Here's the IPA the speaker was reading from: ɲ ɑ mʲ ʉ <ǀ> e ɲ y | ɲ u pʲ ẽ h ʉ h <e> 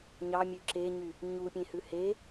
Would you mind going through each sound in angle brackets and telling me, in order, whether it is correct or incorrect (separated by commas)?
incorrect, correct